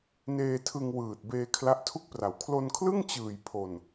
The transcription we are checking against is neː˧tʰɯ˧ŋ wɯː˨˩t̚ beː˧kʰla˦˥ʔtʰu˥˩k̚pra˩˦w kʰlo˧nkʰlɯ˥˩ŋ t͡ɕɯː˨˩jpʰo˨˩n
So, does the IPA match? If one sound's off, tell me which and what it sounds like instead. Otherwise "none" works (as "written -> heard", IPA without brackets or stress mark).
none